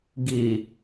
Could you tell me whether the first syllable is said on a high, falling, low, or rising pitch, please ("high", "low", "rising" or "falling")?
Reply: low